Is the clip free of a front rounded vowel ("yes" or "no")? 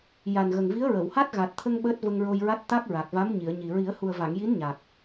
yes